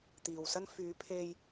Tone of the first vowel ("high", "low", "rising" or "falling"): low